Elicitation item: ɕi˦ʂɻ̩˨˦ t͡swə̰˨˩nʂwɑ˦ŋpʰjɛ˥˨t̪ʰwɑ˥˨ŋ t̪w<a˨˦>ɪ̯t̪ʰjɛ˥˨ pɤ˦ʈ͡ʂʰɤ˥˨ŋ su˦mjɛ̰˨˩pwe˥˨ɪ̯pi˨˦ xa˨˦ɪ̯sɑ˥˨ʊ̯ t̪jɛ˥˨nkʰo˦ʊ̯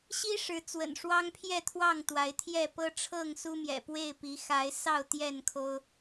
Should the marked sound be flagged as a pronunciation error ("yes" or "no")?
no